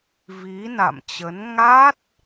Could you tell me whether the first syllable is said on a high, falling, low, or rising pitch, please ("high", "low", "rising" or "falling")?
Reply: rising